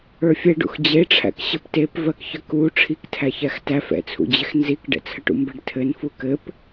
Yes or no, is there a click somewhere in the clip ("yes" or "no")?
no